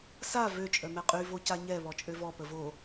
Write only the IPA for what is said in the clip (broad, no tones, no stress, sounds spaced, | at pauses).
s a v ø t͡ʃʼ œ m ɛ qʼ y v o c a ɲ ɛ β ɔ t͡ʃʼ ø v ɔ p ə v o